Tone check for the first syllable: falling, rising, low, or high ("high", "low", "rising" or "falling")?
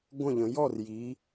falling